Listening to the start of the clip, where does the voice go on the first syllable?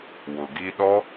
low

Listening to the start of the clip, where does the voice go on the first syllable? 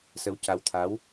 rising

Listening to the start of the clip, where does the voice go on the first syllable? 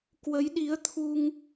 rising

